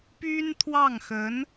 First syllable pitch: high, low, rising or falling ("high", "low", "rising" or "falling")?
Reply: high